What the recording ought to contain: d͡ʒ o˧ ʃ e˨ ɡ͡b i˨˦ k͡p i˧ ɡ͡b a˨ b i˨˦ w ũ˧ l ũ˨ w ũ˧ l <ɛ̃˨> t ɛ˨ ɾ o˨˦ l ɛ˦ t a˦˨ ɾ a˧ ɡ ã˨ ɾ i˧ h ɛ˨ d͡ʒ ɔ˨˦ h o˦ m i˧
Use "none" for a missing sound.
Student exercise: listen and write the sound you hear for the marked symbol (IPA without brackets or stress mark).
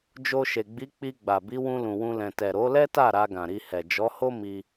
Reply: ɛ̃˨